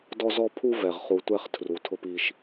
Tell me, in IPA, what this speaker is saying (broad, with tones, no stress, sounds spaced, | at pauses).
d ɔ˦ z ɔ˦ pʰ u˦ v ɛ˨ ʁ χ u˨ tʷ ɛ˦˨ χ tʰ r u˨ tʰ ʊ˦ p i˦ ʃ